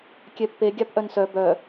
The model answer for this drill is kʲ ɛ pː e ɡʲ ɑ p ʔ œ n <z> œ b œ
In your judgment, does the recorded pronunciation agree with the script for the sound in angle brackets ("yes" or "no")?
no